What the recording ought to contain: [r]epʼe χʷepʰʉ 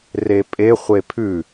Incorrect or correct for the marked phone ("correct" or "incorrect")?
correct